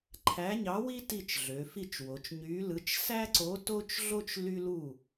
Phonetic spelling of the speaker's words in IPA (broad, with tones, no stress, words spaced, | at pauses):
ǃʰæ˧˥ɲɑ˧˥wi˥ ti˥˨t͡ʃɮø˩˧fi˥˨t͡ʃwo˩˧t͡ʃ ɲy˧˥lɯ˧˥t͡ʃ sæ˥ǀo˧˥ to˥t͡ʃɮo˥t͡ʃ ly˥lu˥˨